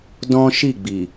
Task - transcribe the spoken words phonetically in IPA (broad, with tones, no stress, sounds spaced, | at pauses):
d ɔ̃˦ ʃ i˦˨ ɡ͡b i˨